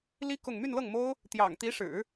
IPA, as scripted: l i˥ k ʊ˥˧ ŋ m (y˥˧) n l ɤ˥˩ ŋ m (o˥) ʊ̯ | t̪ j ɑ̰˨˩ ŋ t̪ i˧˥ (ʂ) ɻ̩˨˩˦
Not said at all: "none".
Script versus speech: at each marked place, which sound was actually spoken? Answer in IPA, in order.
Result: y˥˧, o˥, ʂ

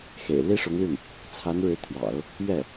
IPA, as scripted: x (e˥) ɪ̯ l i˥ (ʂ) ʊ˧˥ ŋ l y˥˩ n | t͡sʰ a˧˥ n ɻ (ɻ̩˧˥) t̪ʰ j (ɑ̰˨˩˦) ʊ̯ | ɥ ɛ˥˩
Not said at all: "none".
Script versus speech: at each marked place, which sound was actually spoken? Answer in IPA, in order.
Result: ḛ˨˩, ʂ, ɻ̩˧˥, ɑ̰˨˩˦

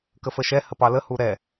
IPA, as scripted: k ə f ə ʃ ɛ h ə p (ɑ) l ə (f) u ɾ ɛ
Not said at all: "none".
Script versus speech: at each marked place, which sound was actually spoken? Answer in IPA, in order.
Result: ɑ, h

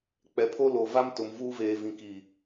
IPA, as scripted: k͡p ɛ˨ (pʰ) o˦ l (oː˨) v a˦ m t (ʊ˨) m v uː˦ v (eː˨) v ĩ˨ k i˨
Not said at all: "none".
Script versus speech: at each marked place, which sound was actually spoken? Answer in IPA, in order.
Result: pʰ, oː˨, ʊ˨, eː˨

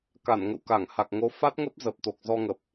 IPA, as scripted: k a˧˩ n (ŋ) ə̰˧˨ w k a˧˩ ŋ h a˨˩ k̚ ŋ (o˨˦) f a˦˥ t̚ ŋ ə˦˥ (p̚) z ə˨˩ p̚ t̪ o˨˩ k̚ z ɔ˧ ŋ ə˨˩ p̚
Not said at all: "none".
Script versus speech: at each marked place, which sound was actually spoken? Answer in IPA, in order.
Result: ŋ, o˨˦, p̚

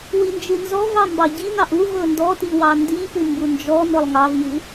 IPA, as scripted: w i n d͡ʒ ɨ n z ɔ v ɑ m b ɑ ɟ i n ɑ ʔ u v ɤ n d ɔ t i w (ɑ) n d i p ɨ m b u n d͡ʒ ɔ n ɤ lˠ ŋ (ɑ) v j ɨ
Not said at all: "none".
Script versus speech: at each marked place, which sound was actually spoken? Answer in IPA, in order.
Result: ɑ, ɑ

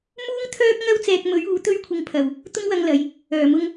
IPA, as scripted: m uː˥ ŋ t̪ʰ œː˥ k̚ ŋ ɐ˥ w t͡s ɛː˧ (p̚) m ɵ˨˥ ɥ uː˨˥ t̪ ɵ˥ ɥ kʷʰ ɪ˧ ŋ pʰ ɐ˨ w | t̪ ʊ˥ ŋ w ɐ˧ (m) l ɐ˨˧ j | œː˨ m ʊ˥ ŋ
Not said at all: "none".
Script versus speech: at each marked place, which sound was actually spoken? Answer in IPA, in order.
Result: k̚, ŋ

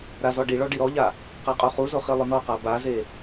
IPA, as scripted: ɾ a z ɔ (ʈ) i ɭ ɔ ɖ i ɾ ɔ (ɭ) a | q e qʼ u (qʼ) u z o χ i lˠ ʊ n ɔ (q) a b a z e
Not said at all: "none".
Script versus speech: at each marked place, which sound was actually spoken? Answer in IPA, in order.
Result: ɖ, ʎ, χ, q

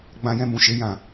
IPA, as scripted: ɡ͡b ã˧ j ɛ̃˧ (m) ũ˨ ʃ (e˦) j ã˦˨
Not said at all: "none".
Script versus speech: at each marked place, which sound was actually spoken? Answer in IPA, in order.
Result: m, e˨˦

